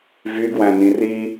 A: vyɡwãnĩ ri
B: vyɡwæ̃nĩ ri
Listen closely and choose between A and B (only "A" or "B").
B